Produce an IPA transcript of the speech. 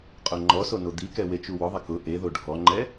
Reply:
qʼ o ŋ͡ǃ ɔ s o n o d̪ i k ɛ w e t͡ʃ u w ʊ ðˤ ɪ k ʊ ʔ e ð o ɖʱ ɔ ŋ͡ǃ ɛ

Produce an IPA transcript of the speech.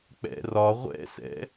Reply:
k͡p ɛ̰ r ɒ ʁʷ ɛ̰ s ɛ̰

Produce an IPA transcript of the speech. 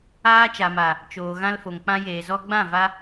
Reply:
aː˧ t͡ʃ a˨ m a˨ | t͡ʃ oː˨ ɣ ã˧ l f o˨ ŋ k͡p ã˧ j eː˨ z ɔ˧ ɡ͡b ã˦˨ v a˧

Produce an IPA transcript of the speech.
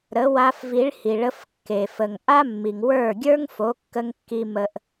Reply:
ɾ ə˨˦ w a˧ f v i˨˦ ɭ h i˨ ɭ ə˧ f kː e˨ f ə˨ ŋ ʔ a˦ mː i˨ ŋ w ə˞˦˨ ɡʲ ə˞˦ ŋ f o˨˦ kː ə˧ ŋ kː i˧ m ə˧ ʔ

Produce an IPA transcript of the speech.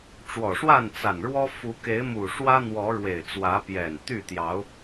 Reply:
ʈ͡ʂ w ɔ˨˩ ʂ w a˥˨ n t͡s a˨˩ n ɻ w ɔ˦ f u˨˦ k e˨˦ ɪ̯ m u˨˩ ʂ w ä˦ n̪ w ɔ˨˦ ɻ w e˨˩ ɪ̯ t͡s w ä˨˦ p j ɛ˨˩ n t̪ y˥˨ t̪ j ɑ˨˦ ʊ̯

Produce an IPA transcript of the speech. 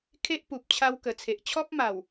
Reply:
kʰ e˦ ʔ p u˨ p̚ t͡ɕʰ a˧ w k ə˨˩ t͡sʰ e˨ ʔ t͡ɕʰ ɔ˦ p̚ m a˨˩ w

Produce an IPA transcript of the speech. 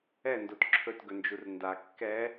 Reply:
ɛ n d o t ǁʰ ɵ t ɡ ɵ n d͡ʒ u r n d a kː ɛ

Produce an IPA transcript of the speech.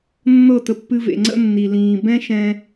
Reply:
nː ɤ˦˨ t ə˧ pː ɨ˧ v ḛ˨ ŋ͡ǀ ə̰˦ nː i˨ l ĩː˨ b ɛ̃˦ ʃ ɛ̃˧

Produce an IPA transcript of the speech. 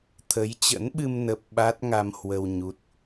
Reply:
t̪ʰ ə˨˦ j t͡ɕ ə̰˧˥ n ɓ ɨ˧ m n ə˦˥ p̚ ɓ a˦˥ t̚ ŋ a˧ m h w ə˧ w ɲ u˦˥ t̚

